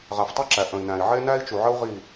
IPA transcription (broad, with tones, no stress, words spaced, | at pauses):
ʁæ˨ftˤɛ˦ǁæ˨ ʔə̃˨i̯næ̃˨i̯ ʕe˦næ˦i̯t͡ʃu˨ʕə˦u̯ ʁi˦˨